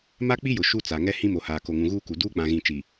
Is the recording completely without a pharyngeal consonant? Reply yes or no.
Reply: yes